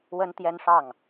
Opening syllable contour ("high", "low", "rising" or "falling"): high